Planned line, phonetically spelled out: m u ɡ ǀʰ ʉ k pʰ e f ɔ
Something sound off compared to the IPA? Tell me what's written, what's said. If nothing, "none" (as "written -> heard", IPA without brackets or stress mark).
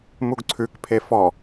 none